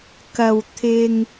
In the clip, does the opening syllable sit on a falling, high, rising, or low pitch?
low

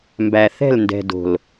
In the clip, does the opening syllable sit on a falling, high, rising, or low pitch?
low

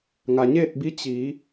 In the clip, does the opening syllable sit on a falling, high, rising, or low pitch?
low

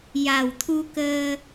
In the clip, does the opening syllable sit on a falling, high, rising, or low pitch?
low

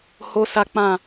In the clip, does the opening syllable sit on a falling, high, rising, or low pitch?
high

